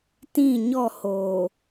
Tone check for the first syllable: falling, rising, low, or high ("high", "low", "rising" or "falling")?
falling